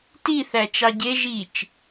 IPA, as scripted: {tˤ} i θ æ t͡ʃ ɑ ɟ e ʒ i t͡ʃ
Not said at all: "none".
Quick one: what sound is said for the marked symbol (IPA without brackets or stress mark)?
t